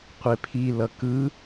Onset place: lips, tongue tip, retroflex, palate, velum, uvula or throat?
uvula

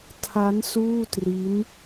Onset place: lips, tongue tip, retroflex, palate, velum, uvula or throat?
tongue tip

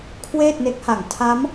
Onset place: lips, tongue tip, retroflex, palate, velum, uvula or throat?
velum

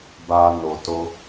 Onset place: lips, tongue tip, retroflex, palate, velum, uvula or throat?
lips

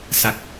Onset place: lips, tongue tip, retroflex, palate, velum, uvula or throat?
tongue tip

